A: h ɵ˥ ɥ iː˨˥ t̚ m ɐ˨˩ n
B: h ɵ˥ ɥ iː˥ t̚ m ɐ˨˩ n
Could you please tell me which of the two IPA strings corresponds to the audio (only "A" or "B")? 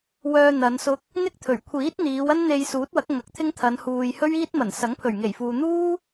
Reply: B